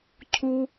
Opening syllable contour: high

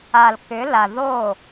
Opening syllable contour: low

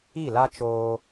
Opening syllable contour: falling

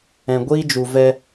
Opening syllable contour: low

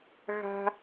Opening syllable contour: low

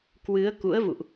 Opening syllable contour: rising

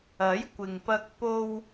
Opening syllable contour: rising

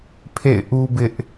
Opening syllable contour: falling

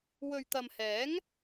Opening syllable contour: low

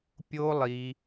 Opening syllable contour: high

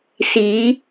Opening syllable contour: rising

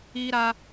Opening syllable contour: high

